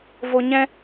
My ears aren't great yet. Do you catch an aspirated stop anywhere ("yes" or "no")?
no